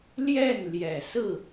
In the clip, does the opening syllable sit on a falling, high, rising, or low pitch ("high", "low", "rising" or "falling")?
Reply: falling